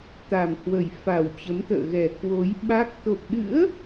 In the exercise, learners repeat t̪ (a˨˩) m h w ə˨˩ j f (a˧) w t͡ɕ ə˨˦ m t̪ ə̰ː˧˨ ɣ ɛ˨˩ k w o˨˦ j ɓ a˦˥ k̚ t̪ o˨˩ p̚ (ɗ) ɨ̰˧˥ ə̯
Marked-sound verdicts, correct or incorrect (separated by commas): correct, incorrect, correct